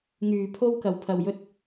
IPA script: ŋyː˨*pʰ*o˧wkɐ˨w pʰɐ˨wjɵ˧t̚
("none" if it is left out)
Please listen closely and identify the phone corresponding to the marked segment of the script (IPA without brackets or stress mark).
pʰ